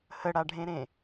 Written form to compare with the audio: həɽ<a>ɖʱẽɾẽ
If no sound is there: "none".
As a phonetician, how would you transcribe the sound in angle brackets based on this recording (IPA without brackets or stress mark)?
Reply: a